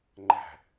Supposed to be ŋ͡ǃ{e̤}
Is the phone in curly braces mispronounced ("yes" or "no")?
yes